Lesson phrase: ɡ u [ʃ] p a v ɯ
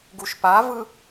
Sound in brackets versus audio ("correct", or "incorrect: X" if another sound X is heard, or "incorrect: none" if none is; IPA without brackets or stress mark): correct